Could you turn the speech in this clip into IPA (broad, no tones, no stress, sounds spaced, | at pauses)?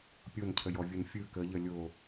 pʲ o n cʰ ə j ɔ vʲ ɯ n fʲ ɯ k ə ʎ ə lʲ o